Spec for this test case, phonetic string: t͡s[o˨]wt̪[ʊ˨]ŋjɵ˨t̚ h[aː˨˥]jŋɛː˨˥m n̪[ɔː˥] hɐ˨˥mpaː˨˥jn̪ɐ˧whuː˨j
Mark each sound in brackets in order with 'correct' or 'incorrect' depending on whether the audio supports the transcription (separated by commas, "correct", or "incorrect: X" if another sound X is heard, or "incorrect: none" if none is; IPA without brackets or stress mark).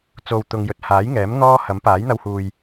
correct, correct, correct, correct